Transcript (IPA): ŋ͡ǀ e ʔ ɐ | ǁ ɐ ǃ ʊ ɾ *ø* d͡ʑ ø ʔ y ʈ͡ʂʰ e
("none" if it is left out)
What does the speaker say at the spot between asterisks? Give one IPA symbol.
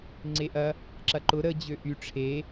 ə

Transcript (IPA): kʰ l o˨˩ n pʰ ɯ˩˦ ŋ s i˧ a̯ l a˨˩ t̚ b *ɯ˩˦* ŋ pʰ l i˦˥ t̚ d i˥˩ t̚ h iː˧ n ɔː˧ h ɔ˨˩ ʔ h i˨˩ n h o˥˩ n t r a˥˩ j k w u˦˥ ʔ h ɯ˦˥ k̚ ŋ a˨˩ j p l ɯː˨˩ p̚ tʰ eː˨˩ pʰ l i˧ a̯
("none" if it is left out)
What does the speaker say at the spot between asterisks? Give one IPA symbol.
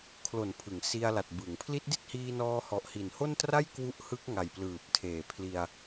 ɯ˩˦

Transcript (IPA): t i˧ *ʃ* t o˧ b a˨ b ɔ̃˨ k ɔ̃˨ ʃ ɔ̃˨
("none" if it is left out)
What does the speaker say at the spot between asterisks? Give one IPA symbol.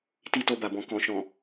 none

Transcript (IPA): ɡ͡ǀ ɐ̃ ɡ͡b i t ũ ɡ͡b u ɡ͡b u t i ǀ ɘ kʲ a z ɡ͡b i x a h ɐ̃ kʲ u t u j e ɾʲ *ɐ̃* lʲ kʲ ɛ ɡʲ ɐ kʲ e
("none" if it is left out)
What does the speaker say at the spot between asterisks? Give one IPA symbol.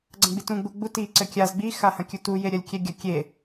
ɐ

